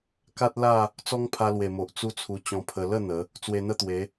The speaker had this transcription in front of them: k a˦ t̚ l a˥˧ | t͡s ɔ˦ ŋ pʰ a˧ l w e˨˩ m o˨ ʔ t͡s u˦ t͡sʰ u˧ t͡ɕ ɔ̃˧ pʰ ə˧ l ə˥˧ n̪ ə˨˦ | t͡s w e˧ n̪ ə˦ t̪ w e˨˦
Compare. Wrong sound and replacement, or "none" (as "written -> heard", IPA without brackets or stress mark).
none